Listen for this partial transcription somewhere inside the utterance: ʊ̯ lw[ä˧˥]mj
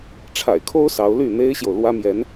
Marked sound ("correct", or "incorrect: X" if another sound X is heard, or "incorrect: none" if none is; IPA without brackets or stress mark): incorrect: ä˥